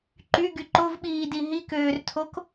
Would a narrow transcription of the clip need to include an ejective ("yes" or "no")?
no